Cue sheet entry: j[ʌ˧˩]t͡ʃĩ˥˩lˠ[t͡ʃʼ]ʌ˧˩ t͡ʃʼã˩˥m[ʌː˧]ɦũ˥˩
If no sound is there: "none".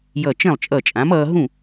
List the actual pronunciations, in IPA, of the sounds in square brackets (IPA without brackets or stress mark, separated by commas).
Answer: ʌ˧˩, t͡ʃʼ, ʌː˧